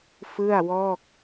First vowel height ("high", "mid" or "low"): high